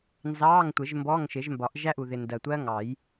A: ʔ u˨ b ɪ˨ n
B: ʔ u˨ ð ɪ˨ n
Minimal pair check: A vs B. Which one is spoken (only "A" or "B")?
B